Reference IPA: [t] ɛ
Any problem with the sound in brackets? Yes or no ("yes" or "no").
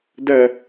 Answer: yes